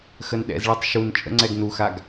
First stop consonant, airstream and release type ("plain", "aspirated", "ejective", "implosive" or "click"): implosive